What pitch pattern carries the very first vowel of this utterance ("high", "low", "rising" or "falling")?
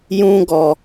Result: high